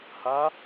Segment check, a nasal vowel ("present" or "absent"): absent